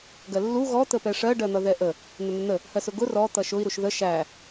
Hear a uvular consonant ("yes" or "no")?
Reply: no